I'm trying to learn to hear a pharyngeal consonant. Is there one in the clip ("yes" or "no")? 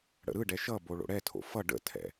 no